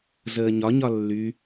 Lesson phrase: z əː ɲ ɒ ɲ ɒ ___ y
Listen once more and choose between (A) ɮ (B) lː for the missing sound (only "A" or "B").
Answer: B